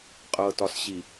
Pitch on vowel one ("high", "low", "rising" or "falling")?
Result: low